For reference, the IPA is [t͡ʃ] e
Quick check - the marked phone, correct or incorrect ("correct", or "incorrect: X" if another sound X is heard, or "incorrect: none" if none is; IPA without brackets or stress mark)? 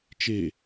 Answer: correct